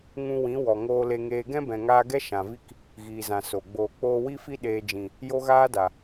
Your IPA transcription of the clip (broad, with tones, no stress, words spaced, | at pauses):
ŋũ˧wĩ˨˦ wɔ˨ ŋoː˧le˧ŋeː˧ ɡɛ̃˦bɛ̃˨ŋaː˧ ɡɛ˦ ʃã˨vi˦k | ɣiː˨zã˨ so˨ɡ͡boː˧ k͡poː˧wi˦fi˦ ɗeː˧ d͡ʒĩ˨ | jo˦ɣaː˦da˨